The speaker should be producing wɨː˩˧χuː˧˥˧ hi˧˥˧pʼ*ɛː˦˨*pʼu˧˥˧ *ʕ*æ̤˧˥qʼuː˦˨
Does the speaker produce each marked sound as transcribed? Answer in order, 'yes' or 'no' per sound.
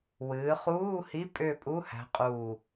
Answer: no, no

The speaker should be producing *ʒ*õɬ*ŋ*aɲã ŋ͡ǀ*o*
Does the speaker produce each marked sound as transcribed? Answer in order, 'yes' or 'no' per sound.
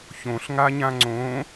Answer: no, yes, no

